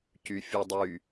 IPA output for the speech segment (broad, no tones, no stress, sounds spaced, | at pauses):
c y fʲ u dˤ y